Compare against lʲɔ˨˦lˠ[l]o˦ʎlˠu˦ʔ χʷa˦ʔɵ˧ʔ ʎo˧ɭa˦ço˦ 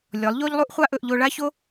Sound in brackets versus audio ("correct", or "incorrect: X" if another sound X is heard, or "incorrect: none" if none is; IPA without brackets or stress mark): incorrect: ʎ